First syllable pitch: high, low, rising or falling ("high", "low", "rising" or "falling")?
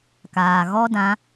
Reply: low